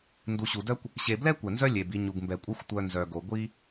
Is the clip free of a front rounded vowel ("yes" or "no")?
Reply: no